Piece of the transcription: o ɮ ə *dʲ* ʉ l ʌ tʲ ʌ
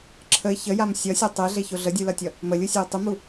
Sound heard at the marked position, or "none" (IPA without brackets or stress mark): dʲ